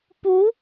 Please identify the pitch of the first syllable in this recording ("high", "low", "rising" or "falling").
rising